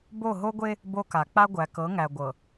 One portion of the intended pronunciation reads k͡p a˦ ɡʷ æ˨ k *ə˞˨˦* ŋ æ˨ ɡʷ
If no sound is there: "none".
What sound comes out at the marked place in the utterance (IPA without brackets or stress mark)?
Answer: ɤ˨˦